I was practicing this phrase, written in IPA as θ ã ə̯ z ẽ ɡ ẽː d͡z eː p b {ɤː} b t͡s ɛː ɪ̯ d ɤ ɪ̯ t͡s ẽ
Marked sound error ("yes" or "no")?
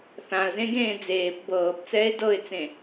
no